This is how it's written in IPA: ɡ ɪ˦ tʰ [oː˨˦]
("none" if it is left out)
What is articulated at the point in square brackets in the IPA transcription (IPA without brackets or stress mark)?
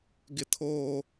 oː˦